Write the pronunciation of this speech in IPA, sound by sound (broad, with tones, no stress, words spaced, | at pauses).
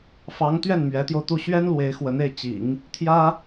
fɑ˧˥ŋ t̪ɥɛ˥˩nmɥɛ˧˥t̪jo˧ʊ̯t̪u˥˩ ɕɥɛ˥n lwe˧˥ɪ̯xwə˧˥ne˥˩ɪ̯ t͡ɕḭ˨˩˦ŋ | t̪ʰjä˥